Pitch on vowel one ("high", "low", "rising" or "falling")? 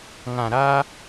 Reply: low